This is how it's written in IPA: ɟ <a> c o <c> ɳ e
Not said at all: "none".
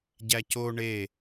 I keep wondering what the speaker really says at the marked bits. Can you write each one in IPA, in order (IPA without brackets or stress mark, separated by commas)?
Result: æ, none